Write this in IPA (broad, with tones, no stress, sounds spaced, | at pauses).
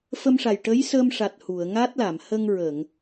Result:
f ə˧ m ʂ a˨˩ j ʈ ə˧˥ j s ə˧ m ʂ a˨˩ t̚ h u˨˩˨ ə̯ ŋ a˦˥ t̚ l a˨˩˨ m h ə˧ ŋ ɹ əː˨˩˨ ŋ